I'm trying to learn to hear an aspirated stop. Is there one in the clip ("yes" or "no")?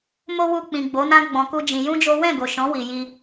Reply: no